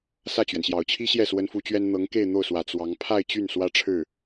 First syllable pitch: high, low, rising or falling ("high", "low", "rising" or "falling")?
falling